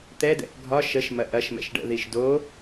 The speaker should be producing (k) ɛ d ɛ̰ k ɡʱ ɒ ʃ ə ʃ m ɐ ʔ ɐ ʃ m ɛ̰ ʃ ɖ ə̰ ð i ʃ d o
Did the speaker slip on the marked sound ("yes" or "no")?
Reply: yes